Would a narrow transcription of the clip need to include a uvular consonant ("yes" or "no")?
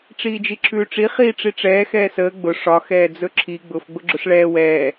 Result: yes